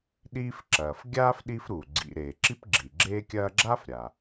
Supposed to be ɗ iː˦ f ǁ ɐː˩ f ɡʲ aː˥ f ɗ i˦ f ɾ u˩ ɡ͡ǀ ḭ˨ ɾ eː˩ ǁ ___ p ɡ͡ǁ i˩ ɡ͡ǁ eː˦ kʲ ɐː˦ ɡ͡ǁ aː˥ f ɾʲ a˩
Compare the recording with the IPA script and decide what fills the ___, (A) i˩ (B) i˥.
B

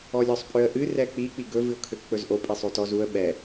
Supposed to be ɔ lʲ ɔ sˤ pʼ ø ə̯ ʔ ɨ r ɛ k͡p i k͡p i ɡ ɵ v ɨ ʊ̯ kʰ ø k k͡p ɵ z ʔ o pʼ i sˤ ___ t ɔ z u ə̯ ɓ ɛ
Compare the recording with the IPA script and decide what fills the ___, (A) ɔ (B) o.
B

